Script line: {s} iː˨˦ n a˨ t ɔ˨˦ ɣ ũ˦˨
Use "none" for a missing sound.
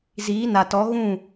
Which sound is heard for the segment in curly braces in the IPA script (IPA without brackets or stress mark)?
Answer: z